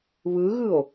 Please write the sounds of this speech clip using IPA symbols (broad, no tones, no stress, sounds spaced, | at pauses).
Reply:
β ɯ ɣ ɯ o̯